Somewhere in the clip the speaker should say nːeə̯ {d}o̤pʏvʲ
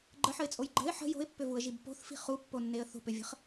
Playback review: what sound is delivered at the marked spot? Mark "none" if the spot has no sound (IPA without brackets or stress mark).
θ